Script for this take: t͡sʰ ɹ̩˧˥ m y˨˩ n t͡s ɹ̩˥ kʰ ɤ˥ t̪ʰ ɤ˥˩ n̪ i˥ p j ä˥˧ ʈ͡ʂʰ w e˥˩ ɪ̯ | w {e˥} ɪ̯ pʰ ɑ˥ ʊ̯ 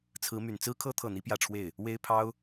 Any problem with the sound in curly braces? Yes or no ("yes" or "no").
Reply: no